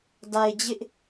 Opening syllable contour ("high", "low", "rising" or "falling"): low